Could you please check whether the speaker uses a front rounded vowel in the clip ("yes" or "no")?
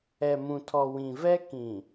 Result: no